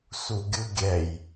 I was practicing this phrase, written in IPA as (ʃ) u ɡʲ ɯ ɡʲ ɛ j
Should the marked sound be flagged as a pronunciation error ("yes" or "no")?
yes